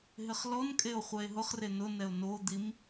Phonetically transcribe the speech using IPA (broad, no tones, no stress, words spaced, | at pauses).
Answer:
ɦɪχlɔnkʼeo̯ χʷɛe̯ɦʊχre nʊnɛo̯ nod̪im